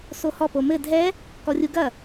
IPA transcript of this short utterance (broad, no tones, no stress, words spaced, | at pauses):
sohɔ pomɘ dʱɛ | kɔrʲuɡɐ